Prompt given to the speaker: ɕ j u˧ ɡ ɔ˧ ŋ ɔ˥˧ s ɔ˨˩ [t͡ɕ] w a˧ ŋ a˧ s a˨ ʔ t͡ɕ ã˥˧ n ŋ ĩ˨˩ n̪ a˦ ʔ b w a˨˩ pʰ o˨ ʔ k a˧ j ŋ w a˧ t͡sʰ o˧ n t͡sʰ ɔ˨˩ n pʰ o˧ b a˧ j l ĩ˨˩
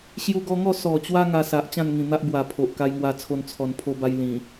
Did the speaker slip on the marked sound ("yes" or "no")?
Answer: no